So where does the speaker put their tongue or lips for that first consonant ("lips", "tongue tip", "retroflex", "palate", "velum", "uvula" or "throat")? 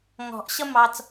velum